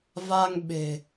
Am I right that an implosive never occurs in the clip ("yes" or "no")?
no